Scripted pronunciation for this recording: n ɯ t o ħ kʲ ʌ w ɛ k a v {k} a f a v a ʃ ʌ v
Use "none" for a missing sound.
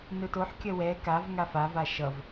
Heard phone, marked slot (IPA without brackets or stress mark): ŋ